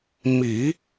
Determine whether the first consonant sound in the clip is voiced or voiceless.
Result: voiced